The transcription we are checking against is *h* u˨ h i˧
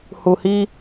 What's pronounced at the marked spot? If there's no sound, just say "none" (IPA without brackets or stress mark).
h